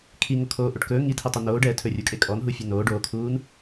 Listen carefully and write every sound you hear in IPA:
kʰ i ŋ o kʰ oː ʔ o ʈ k ɵː ŋ i tʰ i tˤ u n oː ɖ ɛː tʰ ɵ rʲ u kʼ e kʼ ɔ n ɦ u fʲ ɵ n oː ɖ oː kʰ uː n

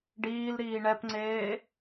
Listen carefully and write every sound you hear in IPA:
ɖ iː l ɾ iː ɳ ɛ p ŋ͡ǀ eː

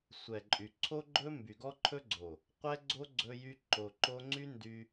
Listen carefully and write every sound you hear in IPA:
sʷ ɛ˨ ǃʼ y˨ ǀʰ o˦ ɡ͡ǃ ɵ˦ m b y˨ ɡ ɔ˧ ǃʰ ɵ˧ ɡ͡ǀ o˨ | qʷ ɛ˦ ɡ͡ǀ o˦ ɡ͡ǀ ɵ˧ j y˧ ǃ o˧ ǃ o˦ ŋ͡ǀ y˦ n d y˧

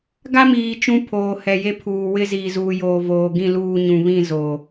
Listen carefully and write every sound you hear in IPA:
ɡ a˦ m iː˨ t͡ʃ ũ˦ pʰ oː˨ h ɛ˨ j e˦ pʰ uː˨ w ɪ˦ z iː˨ z uː˨ j oː˨ v oː˨ ɡ ĩ˦˨ l uː˦˨ ɲ ũ˨ β ĩ˦˨ z oː˨

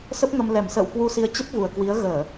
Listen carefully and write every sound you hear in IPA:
s ə˦˥ p̚ ŋ ə˧ m l ɛ˧˩ m s ə̰ː˧˨ w k w u˧ s i˧ ə̯ t͡ɕ ə˦˥ p̚ v u˨˩ ə̯ k w i˨˦ ə̯ ɣ əː˧˩˨

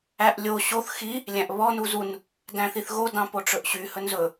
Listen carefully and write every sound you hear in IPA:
æ ʔ lʲ o ɕ o θ x i | lʲ æ̃ ʔ β ɔ n u z u n | d æ̃ θ i θ ɣ o d ɑ̃ p o ʈ͡ʂ ɵ ʔ ɕ y h ɵ n z ɵ

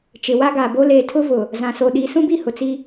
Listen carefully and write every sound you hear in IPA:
t͡ʃ ɪ˨ w a˦ ɡ a˨ b o˦ l eː˨ tʰ ʊ˦ v ʊ˨ | z ã˨ s o˨ ɗ i˨˦ s ũ˦ b i˦˨ h ʊ˨ t͡s i˦

